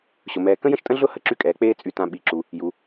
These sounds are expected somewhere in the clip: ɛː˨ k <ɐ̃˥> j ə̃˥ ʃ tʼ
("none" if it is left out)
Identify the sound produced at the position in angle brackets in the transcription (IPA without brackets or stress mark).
ə̃˥